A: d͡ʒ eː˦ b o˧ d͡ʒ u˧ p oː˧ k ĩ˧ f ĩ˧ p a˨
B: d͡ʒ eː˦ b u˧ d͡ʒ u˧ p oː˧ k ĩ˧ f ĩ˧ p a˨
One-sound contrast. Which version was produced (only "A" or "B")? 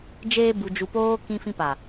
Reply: B